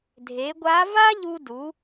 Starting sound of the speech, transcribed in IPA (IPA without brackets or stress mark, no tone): dʱ